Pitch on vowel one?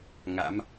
rising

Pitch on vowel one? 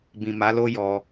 low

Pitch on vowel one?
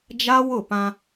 high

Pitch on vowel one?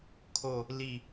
falling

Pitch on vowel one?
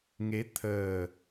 rising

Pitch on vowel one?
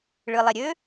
low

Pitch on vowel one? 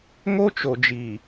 high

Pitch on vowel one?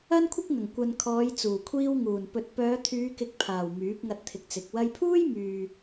high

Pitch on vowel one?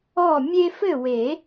falling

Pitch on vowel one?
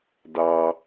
low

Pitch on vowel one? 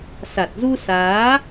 low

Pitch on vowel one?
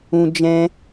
high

